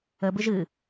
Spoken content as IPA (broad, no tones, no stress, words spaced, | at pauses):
əbɨʒ ɨ